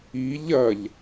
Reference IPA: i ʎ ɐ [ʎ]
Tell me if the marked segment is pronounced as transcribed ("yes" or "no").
yes